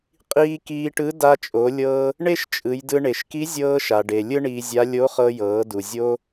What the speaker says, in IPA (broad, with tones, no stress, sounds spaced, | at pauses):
qʼ iː˧ k iː˧ ʈ ɯ˧˥ d a˧ t͡ʃʼ o˩˧ lʲ ɤː˧ | ɳ e˥ ʃ t͡ʃʼ ɯ˩˧ j d ɯ˧ ɳ e˩ ʃ k i˧˥ zʲ ɤː˧ ʃ a˩ ɖ e˩ lʲ ɯ˥ ɳ iː˧ zʲ a˧˥ lʲ o˧˥ χ ɤ˧ j ɤː˩˧ d u˩ zʲ o˧